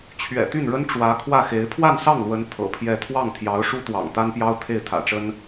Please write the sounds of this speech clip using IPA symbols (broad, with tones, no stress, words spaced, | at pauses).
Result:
t͡ɕʰɥɛ̰˨˩t̪y˥˩nɻə˥n ʈ͡ʂwä˧˥kʰwä˥˩xe˧˥ɪ̯ pʰwa˥˧nsɑ˥˩ŋlwə˧˥n t̪ʰɤ̰˨˩pʰjɛ˥˧ t̪ʰwɑ˥˩ŋt̪ʰjɑ˧˥ʊ̯ ʂu˥t̪wɑ̰˨˩ŋt̪a˥npjɑ˥ʊ̯ t̪ʰe˥˩ɪ̯t̪ʰä̰˨˩ʈ͡ʂə˥n